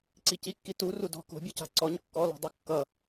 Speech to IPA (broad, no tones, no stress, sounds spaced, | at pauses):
ǀ i c i kː i t u r u d ɔ̤ k o̤ bʲ ɔ c a̤ ǀ ɔ ɲ kː ɔ l ɔ̤ dˤ o kː ʌ